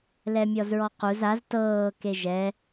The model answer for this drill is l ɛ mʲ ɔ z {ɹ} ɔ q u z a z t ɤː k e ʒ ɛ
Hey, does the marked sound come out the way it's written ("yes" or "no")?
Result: yes